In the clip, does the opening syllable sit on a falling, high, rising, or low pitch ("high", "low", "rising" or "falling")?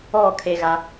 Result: falling